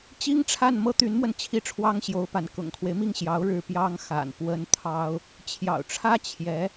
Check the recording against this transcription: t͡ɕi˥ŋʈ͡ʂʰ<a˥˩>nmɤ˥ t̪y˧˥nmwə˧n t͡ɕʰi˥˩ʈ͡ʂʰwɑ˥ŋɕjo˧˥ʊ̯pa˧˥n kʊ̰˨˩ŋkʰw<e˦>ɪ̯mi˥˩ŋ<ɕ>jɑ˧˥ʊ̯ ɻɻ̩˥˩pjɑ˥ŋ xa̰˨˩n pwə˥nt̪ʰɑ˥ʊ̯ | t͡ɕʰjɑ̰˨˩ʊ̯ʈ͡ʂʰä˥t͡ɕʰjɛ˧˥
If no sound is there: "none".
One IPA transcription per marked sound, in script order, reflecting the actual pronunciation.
a˥˩, e˦, ɕ

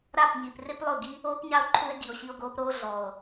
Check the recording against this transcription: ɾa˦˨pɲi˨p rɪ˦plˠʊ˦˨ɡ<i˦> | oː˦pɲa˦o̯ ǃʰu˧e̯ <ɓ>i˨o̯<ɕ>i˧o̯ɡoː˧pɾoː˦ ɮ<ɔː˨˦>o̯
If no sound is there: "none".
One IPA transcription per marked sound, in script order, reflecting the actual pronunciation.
i˦, ɡ, ɕ, ɔː˨

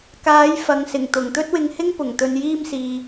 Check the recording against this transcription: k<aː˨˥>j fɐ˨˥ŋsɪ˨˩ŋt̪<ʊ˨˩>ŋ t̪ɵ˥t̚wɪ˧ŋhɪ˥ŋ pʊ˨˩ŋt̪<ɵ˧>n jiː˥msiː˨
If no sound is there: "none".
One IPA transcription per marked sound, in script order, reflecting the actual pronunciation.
aː˨˥, ʊ˨˩, ɵ˧

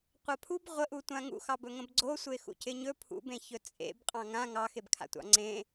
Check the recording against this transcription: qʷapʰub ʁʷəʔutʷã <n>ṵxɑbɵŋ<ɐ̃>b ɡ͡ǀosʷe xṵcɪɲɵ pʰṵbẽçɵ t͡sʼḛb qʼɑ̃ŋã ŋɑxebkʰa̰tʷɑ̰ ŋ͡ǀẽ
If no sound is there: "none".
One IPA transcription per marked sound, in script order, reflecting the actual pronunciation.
ŋ, ə̃

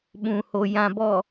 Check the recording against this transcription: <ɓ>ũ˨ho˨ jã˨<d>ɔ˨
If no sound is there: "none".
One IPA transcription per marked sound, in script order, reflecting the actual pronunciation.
ɓ, b

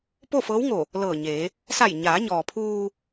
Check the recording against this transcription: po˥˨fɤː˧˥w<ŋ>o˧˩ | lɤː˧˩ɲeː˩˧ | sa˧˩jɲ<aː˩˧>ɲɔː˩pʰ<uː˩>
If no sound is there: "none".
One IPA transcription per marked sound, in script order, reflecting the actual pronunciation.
ŋ, aː˩˧, uː˧

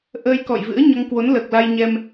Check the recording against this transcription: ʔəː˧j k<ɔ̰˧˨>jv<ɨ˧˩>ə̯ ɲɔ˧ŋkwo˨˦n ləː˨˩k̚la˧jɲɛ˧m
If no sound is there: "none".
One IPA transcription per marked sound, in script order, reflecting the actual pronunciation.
ɔ̰˧˨, ɨ̰˧˥

